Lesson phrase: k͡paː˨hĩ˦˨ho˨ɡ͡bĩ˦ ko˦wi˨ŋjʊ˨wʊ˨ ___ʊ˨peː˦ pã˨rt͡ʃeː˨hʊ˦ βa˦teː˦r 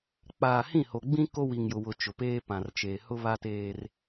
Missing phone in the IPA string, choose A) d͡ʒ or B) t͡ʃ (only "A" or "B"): B